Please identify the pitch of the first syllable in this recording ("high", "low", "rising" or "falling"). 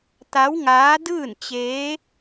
rising